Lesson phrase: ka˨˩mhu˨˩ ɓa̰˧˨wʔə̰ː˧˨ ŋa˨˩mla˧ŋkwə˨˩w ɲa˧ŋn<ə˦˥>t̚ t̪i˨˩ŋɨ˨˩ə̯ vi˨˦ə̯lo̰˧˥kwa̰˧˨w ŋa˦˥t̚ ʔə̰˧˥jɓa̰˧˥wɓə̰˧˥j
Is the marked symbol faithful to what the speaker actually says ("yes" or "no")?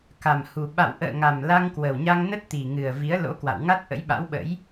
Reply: yes